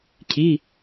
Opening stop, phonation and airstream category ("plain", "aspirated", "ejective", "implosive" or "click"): aspirated